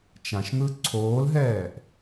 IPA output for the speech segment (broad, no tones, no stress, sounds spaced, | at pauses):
t͡ʃ ã ʃ n̪ ɯ ǀʰ oː l ɦ ɛː ʔ